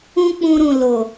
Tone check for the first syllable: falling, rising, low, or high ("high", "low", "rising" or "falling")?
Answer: high